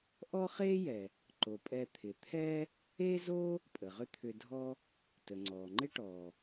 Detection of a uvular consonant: present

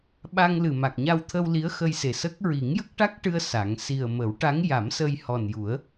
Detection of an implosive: present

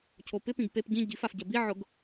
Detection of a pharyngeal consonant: present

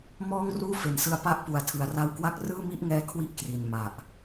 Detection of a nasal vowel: absent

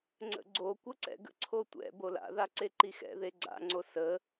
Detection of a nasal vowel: absent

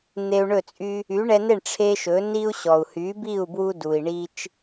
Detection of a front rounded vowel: present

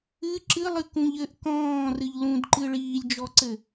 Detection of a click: present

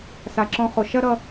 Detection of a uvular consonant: present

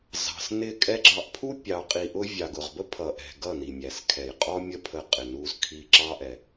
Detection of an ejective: present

